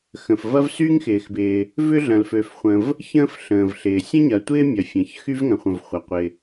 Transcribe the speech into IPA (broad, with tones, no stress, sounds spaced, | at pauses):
x ə̃˩ f v ɐ˥ v s y˥ ŋ x ɪː˩ x b ɪː˩ | v ʏ˥ ɮ ɐ̃˩ l f ø˩ f χʷ ə̃˩ v | ç ə̃ː˥ f ɬ ə̃ː˩ v ɬ ɪː˩ sʲ ə̃˥ ɲ ɐ˩ tʷ ɪː˥ mʲ ɐ˩ fʲ ɐ̃˩ ç x y˥ v ŋ ɐ̃˩ χʷ ə̃˩ v χʷ ɐ˩ qʷ ɪ˩